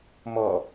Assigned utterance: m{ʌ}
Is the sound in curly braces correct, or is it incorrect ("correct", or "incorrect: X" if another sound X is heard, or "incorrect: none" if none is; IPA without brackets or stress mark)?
incorrect: ɔ